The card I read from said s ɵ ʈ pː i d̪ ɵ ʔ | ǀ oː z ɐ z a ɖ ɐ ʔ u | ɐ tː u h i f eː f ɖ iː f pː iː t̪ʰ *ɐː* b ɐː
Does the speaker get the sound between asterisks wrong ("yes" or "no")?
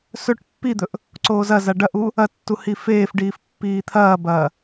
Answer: no